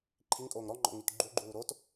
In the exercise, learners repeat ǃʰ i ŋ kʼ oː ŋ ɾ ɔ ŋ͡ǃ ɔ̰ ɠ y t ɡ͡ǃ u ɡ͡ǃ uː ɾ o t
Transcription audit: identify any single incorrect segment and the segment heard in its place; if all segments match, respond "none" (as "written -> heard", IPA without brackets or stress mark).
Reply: ɠ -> ŋ